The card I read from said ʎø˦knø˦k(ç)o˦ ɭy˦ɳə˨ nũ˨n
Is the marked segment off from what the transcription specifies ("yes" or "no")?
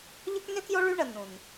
yes